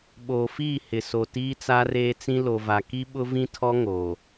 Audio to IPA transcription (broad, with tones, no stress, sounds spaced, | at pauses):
ɓ oː˨ f iː˦˨ h ɪ˨ s o˨ t iː˦ t͡s a˦ r eː˦ t͡s ĩ˦ l o˨ v a˨ k i˦ ɓ ʊ˦ v ĩ˦ tʰ ɔ˦ ŋ oː˨